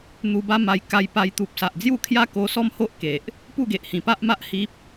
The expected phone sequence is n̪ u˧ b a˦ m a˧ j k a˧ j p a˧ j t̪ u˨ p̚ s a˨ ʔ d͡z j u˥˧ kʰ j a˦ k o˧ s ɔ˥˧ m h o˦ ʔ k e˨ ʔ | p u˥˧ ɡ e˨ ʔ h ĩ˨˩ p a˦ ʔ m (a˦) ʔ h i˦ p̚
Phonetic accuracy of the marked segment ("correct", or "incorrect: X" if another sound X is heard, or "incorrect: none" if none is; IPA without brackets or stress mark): correct